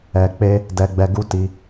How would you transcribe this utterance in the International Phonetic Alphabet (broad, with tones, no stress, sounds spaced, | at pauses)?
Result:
ɛ˧ k͡p e˦ | d ɛ˧ ɡ͡b ɛ˧ ɡ u˦ t i˧